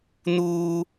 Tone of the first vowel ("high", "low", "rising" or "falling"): high